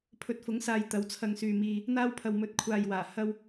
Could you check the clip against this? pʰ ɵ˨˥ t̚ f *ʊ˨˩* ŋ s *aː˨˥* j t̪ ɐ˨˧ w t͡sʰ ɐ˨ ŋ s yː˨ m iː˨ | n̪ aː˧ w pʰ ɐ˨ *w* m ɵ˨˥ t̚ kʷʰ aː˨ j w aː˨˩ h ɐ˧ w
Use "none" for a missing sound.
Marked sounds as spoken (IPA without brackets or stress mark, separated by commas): ʊ˨˥, aː˨, w